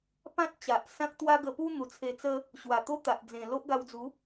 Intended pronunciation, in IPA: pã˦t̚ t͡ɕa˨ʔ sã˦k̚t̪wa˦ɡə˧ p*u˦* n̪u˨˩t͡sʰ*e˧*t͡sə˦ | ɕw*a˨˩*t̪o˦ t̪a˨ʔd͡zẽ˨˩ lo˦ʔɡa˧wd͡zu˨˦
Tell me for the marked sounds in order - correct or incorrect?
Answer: correct, correct, correct

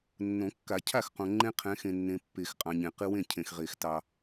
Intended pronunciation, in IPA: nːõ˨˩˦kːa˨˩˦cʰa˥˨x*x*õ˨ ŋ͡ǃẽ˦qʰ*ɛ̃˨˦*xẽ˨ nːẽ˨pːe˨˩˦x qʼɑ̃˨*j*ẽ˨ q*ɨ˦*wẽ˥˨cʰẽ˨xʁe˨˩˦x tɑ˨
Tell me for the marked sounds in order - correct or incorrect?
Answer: incorrect: q, correct, incorrect: ɲ, correct

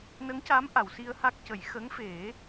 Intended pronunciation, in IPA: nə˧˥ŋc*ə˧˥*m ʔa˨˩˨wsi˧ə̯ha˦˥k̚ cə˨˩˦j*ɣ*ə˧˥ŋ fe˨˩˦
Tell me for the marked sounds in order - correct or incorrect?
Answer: incorrect: a˧˥, incorrect: x

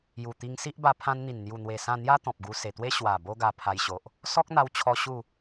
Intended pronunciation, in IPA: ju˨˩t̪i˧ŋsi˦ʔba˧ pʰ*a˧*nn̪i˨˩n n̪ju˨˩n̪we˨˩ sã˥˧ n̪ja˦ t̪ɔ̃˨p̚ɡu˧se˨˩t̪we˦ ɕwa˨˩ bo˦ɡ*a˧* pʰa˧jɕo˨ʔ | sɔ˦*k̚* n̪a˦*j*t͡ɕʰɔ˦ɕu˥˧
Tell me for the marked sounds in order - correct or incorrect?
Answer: incorrect: ã˧, correct, correct, incorrect: w

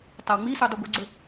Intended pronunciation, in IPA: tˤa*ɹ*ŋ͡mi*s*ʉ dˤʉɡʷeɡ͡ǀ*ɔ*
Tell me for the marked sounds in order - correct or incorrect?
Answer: incorrect: w, correct, incorrect: ɵ

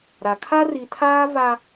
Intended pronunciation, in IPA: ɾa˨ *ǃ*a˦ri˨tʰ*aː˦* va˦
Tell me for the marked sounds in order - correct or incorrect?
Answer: incorrect: kʰ, correct

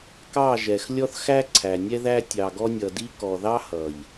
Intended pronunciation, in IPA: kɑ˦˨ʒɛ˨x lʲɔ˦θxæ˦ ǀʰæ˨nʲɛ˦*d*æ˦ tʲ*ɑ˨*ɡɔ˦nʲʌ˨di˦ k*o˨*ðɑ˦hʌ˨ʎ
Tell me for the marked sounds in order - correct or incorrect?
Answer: incorrect: ð, correct, incorrect: ɔ˨

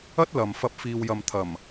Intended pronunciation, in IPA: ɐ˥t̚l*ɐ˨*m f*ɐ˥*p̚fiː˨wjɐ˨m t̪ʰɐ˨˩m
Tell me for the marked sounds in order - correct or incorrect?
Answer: correct, incorrect: ɐ˨˥

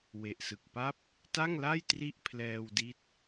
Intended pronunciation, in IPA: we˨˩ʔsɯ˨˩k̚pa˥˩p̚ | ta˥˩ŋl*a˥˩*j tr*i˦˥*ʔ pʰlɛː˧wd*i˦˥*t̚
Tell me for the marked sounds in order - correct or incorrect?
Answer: correct, incorrect: i˥˩, correct

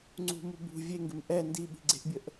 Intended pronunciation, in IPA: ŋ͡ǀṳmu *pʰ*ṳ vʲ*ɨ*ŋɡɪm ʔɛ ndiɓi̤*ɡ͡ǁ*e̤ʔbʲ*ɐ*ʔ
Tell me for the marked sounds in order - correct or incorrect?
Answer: incorrect: b, incorrect: e, incorrect: ɡ͡ǀ, incorrect: ə

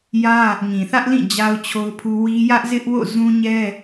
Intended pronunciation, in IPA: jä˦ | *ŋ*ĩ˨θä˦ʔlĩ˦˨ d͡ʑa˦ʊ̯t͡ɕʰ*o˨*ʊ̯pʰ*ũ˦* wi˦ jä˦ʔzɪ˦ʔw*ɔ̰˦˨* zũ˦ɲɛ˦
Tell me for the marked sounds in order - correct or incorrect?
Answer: correct, incorrect: o˦, incorrect: u˦, incorrect: o̰˦˨

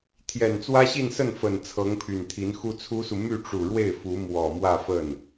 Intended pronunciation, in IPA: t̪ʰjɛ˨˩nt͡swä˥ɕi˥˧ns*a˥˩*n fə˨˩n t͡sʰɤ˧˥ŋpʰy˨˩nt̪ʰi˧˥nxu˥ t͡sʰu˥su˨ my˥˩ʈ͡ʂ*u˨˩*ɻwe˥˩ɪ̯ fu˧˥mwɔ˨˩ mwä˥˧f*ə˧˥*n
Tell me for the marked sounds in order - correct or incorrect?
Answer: incorrect: ə˥˩, correct, incorrect: ə˥˩

